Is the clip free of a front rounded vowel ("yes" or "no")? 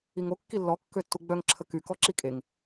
no